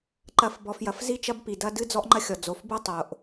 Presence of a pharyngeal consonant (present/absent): absent